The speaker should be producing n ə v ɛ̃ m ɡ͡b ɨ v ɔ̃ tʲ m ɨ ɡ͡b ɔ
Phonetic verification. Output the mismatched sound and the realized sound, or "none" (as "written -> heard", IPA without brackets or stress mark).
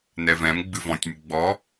ə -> ɛ